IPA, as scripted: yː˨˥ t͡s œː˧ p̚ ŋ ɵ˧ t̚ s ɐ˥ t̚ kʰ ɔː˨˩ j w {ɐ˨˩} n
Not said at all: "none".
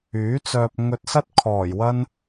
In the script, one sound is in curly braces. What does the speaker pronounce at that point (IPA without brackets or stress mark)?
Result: ɐ˥